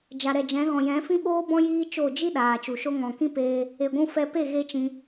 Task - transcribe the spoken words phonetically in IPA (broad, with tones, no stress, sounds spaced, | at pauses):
d͡ʒ a˨ ɾ ɛ˨ d͡ʒ ɛ̃˨˦ ɣ ɔ̃˨ j ɛ̃˨˦ f ĩ˦ ɓ oː˦ b ɔ̃˦ j iː˦ t͡ʃ o˦˨ d͡ʒ i˦ ɗ aː˨ t͡ʃ u˨ ʃ o˦ ŋ ɔ̃˨ k ĩ˦ p eː˧ | e˨ ɡʷ ũ˧ f ɛ˧ p e˦˨ ɣ e˦ t͡ʃ ĩ˧